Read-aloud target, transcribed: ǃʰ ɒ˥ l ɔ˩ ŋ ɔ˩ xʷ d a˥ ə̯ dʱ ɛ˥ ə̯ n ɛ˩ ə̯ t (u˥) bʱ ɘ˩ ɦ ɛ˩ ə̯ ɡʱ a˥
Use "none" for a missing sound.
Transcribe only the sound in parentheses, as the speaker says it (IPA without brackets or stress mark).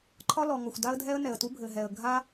u˥